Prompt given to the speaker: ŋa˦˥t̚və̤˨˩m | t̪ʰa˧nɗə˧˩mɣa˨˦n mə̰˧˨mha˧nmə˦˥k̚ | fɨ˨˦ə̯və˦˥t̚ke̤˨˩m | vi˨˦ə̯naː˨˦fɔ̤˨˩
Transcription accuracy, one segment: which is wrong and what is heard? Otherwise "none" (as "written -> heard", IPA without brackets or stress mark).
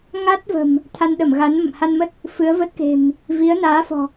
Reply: k̚ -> t̚